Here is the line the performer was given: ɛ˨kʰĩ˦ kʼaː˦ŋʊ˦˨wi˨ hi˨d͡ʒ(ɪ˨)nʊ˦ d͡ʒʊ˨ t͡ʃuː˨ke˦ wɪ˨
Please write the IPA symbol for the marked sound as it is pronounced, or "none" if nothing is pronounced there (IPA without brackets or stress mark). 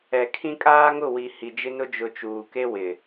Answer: ɪ˦